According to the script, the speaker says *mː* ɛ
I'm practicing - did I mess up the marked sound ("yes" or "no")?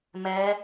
yes